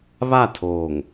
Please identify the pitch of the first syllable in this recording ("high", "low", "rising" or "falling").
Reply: falling